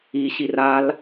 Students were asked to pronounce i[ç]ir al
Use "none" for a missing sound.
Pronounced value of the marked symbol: ɕ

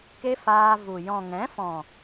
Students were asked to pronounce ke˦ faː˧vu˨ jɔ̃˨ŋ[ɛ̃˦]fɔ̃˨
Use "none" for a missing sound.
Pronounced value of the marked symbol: ɛ̃˨˦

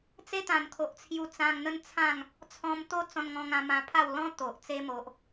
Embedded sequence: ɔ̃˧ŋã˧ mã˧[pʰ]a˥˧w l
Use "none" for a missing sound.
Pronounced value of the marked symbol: pʰ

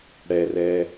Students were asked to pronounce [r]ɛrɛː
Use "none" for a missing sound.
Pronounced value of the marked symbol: ɽ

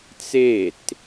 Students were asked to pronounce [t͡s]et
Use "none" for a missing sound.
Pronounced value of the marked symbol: t͡s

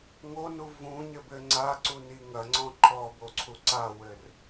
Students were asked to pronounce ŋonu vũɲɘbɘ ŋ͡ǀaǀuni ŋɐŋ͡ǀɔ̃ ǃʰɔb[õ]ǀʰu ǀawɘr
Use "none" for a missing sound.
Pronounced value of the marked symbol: o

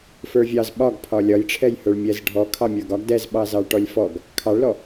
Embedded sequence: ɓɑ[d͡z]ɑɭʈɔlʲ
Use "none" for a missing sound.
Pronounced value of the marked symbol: z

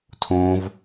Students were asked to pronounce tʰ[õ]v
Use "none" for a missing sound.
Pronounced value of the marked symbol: õː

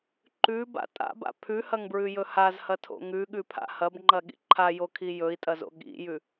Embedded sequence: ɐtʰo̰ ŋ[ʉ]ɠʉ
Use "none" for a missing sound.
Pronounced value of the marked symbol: ʉ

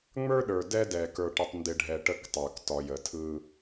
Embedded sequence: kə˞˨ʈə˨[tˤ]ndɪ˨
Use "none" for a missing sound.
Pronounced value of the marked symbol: tˤ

